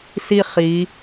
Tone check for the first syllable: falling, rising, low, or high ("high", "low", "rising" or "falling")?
falling